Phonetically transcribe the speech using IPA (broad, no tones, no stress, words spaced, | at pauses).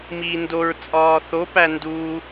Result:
miːndoɹ t͡sʼɒːθo pænduː